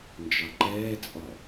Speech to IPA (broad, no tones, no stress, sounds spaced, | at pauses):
n d͡ʒ ɑ ǃ ɛː t͡sʼ ɒ